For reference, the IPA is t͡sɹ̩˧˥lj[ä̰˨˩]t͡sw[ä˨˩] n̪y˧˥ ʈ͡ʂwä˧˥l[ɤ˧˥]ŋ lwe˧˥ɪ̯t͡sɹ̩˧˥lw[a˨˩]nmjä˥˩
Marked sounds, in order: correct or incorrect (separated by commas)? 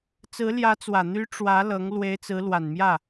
incorrect, correct, correct, correct